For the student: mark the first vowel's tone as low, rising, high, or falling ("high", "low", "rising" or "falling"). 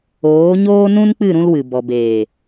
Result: rising